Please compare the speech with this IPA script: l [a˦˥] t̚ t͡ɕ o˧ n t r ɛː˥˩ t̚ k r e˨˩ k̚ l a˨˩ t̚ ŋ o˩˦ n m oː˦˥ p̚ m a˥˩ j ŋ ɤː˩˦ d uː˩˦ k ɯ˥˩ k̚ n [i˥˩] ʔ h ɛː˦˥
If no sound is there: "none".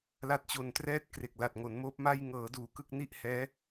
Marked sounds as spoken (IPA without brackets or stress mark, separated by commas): a˦˥, i˥˩